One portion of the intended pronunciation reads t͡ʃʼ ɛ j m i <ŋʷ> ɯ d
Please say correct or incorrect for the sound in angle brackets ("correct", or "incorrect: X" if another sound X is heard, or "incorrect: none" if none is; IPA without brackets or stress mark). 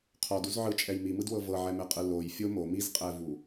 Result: incorrect: m